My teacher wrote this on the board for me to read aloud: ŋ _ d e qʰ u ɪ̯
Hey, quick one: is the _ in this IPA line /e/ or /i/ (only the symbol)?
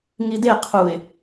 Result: i